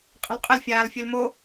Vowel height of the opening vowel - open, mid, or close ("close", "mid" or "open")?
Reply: mid